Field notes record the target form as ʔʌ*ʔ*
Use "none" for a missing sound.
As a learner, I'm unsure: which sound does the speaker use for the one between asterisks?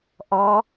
none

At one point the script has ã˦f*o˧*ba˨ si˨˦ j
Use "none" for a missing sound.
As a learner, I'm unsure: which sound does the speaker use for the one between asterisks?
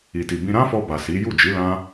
ɔ˧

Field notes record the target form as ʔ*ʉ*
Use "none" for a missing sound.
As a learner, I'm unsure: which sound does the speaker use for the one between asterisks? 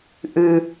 ʉ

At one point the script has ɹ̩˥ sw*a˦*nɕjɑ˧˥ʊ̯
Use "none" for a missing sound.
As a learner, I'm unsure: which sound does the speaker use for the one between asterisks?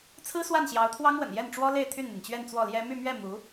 a˥˩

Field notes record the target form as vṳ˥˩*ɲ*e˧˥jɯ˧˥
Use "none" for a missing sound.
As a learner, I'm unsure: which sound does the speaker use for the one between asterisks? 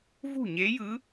ɲ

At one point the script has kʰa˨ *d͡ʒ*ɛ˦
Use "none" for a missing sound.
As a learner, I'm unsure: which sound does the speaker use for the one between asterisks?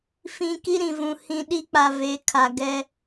ɡ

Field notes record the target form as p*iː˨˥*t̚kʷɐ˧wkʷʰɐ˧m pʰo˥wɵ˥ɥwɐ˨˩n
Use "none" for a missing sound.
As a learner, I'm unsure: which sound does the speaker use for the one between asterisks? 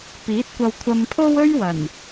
iː˨˥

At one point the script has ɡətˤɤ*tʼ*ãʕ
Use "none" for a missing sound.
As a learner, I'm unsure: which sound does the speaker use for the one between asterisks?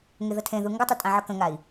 tʼ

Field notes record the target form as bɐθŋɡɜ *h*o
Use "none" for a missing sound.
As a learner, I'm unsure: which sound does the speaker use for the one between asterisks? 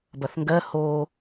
h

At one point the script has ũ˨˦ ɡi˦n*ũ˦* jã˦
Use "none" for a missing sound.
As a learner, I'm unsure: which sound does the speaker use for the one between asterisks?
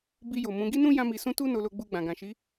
ũ˦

